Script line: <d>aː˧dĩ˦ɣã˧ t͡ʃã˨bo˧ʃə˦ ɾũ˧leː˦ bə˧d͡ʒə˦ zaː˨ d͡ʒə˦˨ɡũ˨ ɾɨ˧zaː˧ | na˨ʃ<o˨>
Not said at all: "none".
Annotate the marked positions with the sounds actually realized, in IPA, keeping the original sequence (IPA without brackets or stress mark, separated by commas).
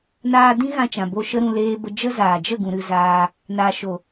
n, o˨